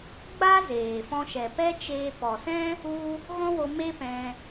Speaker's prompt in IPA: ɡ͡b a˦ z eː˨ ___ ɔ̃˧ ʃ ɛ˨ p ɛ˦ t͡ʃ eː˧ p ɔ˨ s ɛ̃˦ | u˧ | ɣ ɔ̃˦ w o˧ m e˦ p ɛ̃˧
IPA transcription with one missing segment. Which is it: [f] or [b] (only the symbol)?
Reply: f